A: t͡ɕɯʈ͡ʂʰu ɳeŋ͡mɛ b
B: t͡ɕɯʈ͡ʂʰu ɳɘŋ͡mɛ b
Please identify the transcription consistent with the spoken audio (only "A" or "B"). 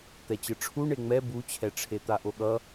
A